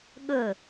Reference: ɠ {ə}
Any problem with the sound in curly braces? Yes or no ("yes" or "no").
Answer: yes